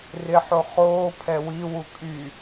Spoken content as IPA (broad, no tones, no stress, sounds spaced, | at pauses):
r ɪ ħ o χ oː pʰ ɛ w i w u kʼ y